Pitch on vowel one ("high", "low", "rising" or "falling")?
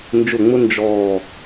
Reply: falling